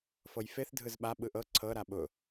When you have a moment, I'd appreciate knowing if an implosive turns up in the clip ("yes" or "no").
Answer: yes